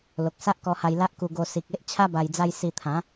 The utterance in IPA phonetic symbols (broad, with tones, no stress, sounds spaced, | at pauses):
l o˨ k̚ s a˦ ʔ k ɔ˧ h a˧ j l a˦ ʔ k u˧ ɡ o˧ s i˨ k̚ e˦ ʔ t͡ɕʰ a˦ b a˧ j d͡z a˦ j s i˧ t̪ʰ ã˨˦